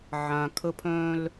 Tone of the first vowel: low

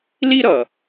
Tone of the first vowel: high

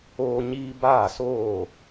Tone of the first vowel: high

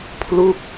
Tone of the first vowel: falling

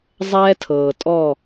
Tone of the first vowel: high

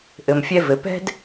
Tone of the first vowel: low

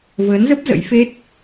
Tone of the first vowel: rising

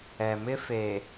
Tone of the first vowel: low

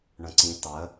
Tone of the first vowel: low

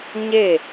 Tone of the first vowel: falling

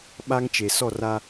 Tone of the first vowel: high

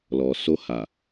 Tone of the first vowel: low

